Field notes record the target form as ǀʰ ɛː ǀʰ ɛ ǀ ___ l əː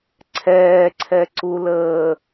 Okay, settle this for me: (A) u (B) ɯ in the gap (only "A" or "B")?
A